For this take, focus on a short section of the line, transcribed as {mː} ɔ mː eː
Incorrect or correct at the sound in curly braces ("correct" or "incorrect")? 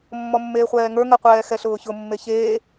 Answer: correct